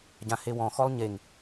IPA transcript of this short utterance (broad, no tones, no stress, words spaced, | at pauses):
ɟãhewɔ̃xɔlˠ ɲeŋ